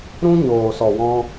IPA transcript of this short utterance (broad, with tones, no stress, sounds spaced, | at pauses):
ɾ ũ˦ ɲ oː˨ s ɔ˨ w ɔ̃˧